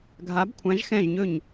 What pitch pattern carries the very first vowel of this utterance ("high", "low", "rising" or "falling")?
rising